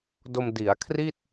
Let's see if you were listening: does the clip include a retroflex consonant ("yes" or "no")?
no